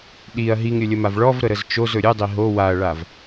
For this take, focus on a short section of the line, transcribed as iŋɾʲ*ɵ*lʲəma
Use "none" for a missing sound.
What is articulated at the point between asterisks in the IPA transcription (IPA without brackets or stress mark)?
ɵ